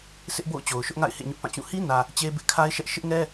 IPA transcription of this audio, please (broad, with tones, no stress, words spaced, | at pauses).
sʰɪ˦ʔbo̰˦˨ʊ̯ t͡ɕo˨ʊ̯ʃʊ˦ʔŋa̰˦˨ɪ̯ hḛ˦˨ɲʊ˦ʔpã˦˨t͡ɕũ˦˨ hi˦nä˨ | t͡ɕe˦bɪ˦ʔ kʰa˦ɪ̯ʃɛ˦ʔ ʃɪ˦ʔŋɛ˦